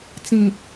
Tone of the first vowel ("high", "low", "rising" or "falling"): low